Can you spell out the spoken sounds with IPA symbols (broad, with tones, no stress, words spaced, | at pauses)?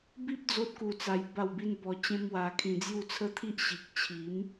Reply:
bi˦p̚ d͡zo˦t̚ku˧t͡sa˧j ba˥˧wbi˦n bɔ˧ t͡ɕẽ˦mwa˧kʰĩ˧d͡zju˥˧ t͡sʰə˦t̪ʰi˦ʔ ɕi˨k̚t͡ɕʰi˨˦m